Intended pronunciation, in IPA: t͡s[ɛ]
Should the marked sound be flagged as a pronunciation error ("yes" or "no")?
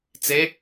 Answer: yes